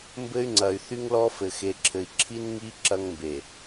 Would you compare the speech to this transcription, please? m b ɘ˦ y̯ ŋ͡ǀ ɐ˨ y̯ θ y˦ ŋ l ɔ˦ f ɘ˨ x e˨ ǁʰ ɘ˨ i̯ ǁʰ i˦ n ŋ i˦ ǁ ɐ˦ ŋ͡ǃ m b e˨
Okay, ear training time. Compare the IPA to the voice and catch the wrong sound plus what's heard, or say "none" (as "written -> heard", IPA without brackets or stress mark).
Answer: ŋ͡ǃ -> ŋ